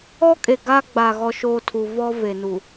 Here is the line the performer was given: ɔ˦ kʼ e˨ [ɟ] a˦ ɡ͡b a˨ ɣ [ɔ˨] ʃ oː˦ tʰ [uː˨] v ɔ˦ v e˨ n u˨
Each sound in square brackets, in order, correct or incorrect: incorrect: ɡ, incorrect: ɔ˦, incorrect: u˨

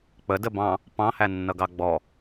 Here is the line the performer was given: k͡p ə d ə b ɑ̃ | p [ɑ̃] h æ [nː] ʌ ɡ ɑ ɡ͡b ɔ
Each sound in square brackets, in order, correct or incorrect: correct, correct

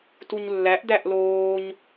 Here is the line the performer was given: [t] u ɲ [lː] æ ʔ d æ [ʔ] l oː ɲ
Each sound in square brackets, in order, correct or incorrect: correct, correct, correct

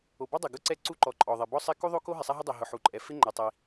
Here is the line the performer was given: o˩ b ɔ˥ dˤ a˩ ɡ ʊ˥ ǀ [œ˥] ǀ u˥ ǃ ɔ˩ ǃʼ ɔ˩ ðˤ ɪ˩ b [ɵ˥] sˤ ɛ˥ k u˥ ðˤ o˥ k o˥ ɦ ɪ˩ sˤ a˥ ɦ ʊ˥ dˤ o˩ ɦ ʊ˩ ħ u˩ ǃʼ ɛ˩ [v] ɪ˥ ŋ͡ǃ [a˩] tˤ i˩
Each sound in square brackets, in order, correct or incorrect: incorrect: ɛ˥, incorrect: ɔ˥, incorrect: f, correct

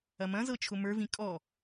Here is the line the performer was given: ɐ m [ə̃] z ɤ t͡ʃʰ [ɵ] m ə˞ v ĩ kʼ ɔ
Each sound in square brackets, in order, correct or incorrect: incorrect: ɐ̃, incorrect: ʊ

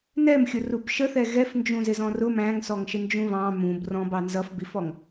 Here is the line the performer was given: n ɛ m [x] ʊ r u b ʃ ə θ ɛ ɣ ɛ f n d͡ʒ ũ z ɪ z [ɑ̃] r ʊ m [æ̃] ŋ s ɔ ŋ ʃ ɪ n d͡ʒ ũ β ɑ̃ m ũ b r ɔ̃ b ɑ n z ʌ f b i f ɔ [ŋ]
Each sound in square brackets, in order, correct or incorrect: incorrect: xʲ, incorrect: ɔ̃, correct, correct

